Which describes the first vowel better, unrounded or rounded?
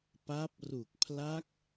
unrounded